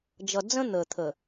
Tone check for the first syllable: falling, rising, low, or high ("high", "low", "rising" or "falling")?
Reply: low